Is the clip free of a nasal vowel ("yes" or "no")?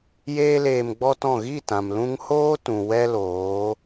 no